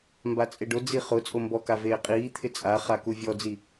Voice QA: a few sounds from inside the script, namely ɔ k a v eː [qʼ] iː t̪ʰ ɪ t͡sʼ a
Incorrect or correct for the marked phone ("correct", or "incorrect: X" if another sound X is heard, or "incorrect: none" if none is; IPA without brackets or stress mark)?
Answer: correct